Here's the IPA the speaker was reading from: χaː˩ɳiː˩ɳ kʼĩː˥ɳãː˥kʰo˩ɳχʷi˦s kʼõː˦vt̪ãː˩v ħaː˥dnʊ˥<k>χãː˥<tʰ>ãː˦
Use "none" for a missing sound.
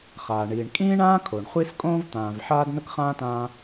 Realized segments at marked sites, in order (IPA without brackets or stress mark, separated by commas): k, t